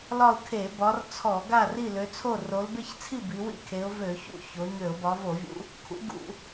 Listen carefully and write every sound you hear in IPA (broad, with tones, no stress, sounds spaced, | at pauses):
l ɒ˥˨ ʊ̯ kʰ e˧˩˧ b ɒ˨˦ r t͡sʰ ɔ˧˩˧ ɡ a˥˨ r i˥˨ l ø˨˦ t͡sʰ o˥˨ r o˨˦ l b e˥˨ ç t͡sʰ i˥˨ b i˨˦ w ḭ˥˨ kʰ e˨˦ ʊ̯ v ø˧˩˧ ç ṵ˥˨ ç o˨˦ ɲ ø˧˩˧ ʊ̯ b ɒ˨˦ v o˧˩˧ vʲ ṵ˨˦ | kʰ ṵ˨˦ ɡ ṵ˧˩˧